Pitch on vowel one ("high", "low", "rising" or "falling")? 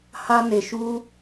high